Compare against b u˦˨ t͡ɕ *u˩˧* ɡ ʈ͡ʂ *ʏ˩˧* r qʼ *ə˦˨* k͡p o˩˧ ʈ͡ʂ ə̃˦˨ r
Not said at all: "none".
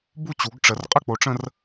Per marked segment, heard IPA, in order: u˩˧, ə˩˧, ə˦˨

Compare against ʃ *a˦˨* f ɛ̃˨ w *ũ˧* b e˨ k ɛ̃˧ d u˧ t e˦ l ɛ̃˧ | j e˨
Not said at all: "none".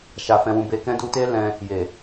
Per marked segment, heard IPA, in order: a˨, ũ˨

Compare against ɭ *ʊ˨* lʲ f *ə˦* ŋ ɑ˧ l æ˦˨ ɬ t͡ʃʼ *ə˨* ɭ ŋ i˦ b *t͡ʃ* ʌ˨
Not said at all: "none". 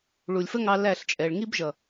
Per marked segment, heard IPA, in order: u˨, ə˦, ɛ˨, ʒ

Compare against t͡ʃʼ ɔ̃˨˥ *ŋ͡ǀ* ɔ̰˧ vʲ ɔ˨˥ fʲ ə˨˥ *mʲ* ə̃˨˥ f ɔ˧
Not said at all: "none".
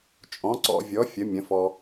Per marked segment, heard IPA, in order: ǀ, mʲ

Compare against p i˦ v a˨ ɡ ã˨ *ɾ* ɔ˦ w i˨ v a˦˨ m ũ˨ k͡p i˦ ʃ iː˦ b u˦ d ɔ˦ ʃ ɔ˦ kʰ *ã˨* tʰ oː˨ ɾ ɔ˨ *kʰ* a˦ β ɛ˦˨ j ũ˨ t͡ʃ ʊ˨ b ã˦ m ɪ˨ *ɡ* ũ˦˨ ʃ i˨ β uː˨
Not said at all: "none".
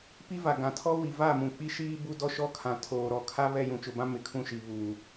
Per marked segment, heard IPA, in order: tʰ, ã˨, kʰ, kʰ

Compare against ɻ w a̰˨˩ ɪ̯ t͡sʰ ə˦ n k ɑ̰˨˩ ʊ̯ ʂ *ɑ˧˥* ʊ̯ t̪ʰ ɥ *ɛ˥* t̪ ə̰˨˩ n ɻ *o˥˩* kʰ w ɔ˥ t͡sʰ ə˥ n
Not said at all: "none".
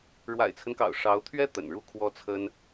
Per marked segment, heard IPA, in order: ɑ˧˥, ɛ˥, u˥˩

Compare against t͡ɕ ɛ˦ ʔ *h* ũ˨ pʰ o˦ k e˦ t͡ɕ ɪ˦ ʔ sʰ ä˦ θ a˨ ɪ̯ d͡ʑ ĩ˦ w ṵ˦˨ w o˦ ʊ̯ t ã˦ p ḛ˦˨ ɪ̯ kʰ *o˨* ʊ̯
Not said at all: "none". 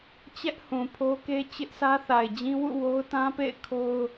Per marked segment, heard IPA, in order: h, o˦

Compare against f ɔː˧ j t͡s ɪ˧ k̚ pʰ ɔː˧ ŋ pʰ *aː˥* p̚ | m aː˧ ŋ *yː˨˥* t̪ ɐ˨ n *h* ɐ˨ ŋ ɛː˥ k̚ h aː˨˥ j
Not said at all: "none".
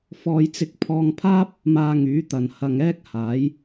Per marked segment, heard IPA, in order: aː˥, yː˨˥, h

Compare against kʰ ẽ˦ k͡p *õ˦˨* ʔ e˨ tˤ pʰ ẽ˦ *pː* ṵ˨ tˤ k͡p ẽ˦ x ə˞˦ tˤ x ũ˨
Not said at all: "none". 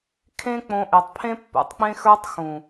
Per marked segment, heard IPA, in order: õ˧, pː

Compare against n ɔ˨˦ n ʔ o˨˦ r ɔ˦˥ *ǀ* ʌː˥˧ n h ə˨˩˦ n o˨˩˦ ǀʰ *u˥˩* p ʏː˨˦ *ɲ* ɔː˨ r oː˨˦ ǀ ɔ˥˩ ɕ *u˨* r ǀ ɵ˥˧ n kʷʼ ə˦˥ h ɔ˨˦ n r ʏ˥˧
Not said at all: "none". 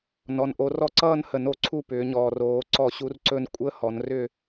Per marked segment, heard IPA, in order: ǀ, u˥˩, ɲ, u˦˥

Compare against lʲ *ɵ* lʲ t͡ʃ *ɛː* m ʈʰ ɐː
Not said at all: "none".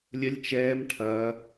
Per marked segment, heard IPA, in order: ə, ɛː

